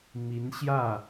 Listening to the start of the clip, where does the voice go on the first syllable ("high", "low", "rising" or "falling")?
rising